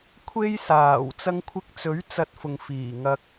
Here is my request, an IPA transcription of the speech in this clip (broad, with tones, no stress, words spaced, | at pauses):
kʷʰe˥jsaː˨˩w t͡sɐ˧ŋkʷʰɪ˧k̚t͡sɵ˨˥ɥ t͡sɐ˧t̚fʊ˨ŋ fiː˨˩ŋɐ˧k̚